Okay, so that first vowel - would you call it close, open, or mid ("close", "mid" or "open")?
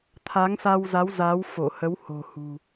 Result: open